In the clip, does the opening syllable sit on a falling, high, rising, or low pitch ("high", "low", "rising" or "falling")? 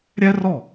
high